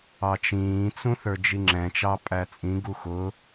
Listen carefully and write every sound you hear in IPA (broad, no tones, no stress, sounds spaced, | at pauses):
ɑ t͡ʃ ĩː t͡s ũ θ ə˞ d͡ʒ i ŋ͡ǁ ɛ̃ t͡ʃ ɑ pʼ æ t͡sʼ ĩ ɡ u x ʊ